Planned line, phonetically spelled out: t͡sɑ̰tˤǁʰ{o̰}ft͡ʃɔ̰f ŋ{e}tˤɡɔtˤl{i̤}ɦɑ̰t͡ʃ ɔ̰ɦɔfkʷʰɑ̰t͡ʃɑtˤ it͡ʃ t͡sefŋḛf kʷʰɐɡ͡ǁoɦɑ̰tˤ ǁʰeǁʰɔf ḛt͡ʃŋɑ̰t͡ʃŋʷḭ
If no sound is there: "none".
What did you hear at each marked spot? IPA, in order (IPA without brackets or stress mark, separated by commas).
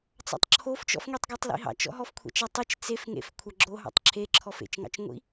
o, e, ḭ